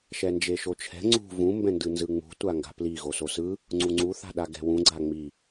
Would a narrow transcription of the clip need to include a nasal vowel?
yes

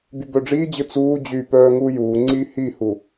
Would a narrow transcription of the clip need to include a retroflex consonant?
yes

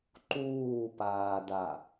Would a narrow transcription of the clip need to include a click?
yes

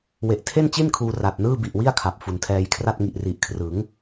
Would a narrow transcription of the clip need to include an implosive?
no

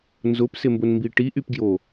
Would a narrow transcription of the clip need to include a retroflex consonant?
yes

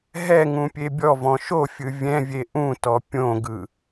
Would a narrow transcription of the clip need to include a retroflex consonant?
no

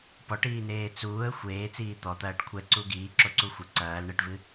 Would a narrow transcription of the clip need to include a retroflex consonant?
yes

